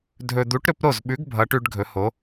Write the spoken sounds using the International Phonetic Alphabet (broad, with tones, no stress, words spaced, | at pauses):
dʱɵ˦ d̪u˨˥ʈɾɵ˦pɾo˥˩zɓʉ˨˥ɡ bʱʌ˨˥ʈʉ˦ɖ ɡʱɵ˨˥ho˨˥